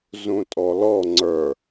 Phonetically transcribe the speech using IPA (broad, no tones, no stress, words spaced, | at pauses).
zũtʼɔlɔ ŋ͡ǀə˞